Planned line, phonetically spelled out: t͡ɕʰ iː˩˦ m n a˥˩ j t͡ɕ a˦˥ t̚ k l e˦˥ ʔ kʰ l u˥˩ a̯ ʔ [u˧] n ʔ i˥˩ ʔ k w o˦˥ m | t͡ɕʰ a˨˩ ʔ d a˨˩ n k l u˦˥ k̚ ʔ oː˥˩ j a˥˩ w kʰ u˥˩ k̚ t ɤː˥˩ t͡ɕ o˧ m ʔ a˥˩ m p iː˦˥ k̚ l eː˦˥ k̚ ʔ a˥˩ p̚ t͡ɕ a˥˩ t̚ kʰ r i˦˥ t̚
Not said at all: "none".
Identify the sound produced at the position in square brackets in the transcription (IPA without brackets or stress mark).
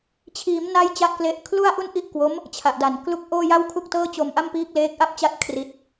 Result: u˥˩